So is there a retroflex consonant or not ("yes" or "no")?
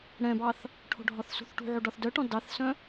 yes